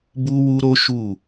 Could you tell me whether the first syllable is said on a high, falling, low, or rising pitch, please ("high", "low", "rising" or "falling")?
high